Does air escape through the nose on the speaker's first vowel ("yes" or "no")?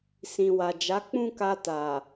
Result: yes